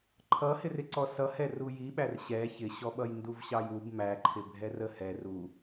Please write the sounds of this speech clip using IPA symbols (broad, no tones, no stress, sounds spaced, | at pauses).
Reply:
ǃʰ ʌ h ɪ r ɪ ǀ ɔ s ʌ h ɛ r u j i ɓ æ r ɕ ɛ ç ɪ ɕ ɔ ɓ ʌ j n d u v ɕ ɑ j u b m æ ǃʰ ɪ bʱ ɛ r ə h ɛ r u